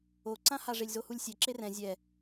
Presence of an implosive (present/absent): absent